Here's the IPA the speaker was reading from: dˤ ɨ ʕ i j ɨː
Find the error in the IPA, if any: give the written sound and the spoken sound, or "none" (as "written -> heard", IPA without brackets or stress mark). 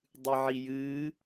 none